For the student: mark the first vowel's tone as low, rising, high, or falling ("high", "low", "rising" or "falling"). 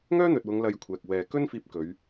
high